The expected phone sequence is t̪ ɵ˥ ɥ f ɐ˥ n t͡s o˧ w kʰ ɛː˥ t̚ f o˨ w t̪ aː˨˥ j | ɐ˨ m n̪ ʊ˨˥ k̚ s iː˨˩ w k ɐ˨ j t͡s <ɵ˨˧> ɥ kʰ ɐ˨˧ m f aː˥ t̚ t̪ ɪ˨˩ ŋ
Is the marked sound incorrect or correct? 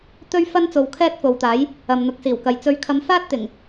correct